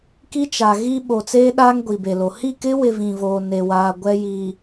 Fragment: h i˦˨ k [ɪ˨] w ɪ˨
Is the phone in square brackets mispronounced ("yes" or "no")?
yes